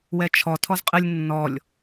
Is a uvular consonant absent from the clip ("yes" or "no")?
no